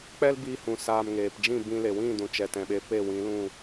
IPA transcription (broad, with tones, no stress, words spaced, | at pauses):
k͡pɛ˦l biː˧hũ˨ saː˨m ŋeː˨pd͡ʒĩ˦˨ bĩ˧le˨ wĩ˦˨ dũ˨ t͡ʃɛ˨tɛ̃˨ɓe˧pe˦˨ wĩ˨˦lũ˦˨